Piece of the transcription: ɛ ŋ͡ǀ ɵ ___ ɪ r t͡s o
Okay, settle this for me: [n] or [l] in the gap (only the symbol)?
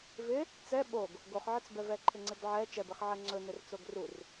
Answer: n